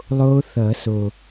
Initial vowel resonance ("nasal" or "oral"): oral